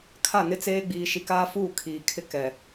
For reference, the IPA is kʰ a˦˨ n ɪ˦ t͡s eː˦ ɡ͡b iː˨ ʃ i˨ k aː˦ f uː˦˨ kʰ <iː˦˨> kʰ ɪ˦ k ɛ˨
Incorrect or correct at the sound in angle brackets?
incorrect: iː˨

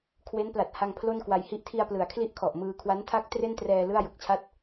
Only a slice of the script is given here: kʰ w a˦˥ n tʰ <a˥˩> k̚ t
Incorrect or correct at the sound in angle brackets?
correct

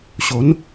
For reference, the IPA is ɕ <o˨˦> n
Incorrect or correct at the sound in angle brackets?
correct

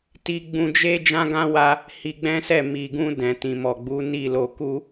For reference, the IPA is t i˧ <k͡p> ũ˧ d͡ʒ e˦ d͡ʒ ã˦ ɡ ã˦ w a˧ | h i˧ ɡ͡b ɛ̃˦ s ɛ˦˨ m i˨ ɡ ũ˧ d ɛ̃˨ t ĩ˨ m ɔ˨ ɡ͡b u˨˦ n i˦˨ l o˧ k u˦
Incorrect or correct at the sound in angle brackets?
incorrect: ɡ͡b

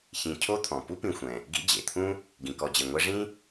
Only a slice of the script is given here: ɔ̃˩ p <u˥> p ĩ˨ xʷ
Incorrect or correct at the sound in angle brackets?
correct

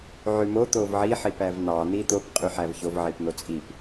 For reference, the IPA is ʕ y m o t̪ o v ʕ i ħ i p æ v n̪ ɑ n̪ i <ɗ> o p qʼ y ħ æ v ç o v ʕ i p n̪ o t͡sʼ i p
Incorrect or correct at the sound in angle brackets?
incorrect: t̪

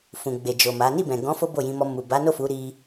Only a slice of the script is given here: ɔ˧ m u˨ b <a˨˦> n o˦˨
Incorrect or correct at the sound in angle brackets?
correct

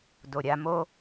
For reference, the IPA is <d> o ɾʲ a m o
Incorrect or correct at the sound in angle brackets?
correct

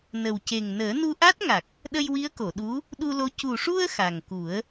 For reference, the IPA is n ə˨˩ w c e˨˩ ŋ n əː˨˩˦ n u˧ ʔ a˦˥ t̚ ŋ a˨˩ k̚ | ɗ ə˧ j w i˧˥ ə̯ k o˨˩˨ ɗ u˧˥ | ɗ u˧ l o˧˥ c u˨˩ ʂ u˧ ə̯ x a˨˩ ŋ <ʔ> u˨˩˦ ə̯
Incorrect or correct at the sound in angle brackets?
incorrect: k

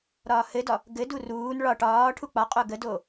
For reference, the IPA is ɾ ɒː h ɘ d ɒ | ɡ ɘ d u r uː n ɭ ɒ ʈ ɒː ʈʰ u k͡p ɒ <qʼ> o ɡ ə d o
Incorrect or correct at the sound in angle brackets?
correct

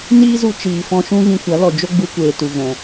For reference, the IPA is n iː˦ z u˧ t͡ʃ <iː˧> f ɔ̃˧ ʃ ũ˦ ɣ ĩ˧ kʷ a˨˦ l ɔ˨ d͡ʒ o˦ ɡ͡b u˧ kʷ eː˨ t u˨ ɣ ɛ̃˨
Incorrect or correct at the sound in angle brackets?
incorrect: iː˨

